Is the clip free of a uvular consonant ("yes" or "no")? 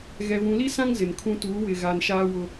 yes